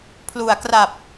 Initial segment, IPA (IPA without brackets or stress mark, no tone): pʰ